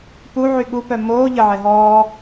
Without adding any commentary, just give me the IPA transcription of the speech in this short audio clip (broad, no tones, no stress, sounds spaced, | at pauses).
p u ʕ y ɠ u p œ m oː ʎ ə ʕ ɛ ɦ ɔː